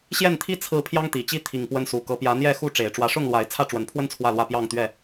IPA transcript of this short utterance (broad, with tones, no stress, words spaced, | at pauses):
ɕjɛ˥˨nt̪ʰi˦ t͡sʰɹ̩˨˦ pʰjɑ˦ŋt̪i˨˩t͡ɕi˥˨ t̪ʰi˨˩ŋpwə˨˦nsu˨˩ kɤ˨˦pjä˨˦n̪jɛ˥˨xu˥˨ ʈ͡ʂe˨˩ɪ̯ʈ͡ʂwä˨˦ʂʊ˥˨ŋlwa˨˦ɪ̯ t͡sʰä˥˨ʈ͡ʂwə˨˦npʰwə˦n t͡sʰwä˥˨lwä˥˨ pjɑ˥˨ŋt̪ɥɛ˥˨